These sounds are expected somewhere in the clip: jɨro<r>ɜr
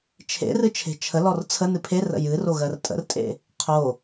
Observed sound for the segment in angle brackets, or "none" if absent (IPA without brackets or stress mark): ɣ